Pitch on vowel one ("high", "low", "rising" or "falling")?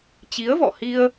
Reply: rising